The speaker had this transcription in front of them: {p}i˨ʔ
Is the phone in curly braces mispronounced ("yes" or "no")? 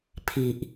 yes